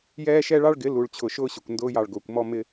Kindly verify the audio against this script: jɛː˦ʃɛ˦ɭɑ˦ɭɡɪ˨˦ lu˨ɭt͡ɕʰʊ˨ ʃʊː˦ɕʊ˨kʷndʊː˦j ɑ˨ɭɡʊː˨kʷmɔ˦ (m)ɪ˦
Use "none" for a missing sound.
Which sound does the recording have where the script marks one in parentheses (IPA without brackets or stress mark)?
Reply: m